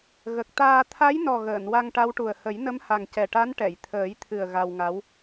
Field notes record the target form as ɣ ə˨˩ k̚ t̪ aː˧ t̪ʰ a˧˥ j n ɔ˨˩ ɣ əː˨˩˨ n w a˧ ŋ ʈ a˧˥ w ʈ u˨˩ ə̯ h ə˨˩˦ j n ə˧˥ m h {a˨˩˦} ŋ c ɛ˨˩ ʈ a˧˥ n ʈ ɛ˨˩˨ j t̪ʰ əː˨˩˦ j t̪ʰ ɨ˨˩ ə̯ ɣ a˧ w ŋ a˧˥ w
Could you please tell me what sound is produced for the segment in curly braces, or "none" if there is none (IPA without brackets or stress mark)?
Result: a˨˩